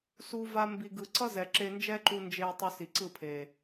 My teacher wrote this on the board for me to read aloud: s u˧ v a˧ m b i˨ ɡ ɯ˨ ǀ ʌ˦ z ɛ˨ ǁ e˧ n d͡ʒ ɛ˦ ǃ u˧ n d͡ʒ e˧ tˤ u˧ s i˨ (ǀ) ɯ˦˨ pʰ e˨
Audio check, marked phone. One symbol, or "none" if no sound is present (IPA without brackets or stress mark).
ǀ